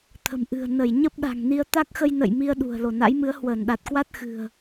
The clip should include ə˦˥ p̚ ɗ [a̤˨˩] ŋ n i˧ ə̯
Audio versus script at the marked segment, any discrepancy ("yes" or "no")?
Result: no